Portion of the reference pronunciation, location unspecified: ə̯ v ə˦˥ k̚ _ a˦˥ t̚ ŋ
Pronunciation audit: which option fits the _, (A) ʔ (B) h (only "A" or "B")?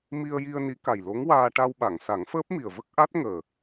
A